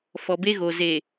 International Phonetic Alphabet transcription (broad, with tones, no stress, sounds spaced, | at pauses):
f ɔ˨ b e˦ ɣ o˨ z e˨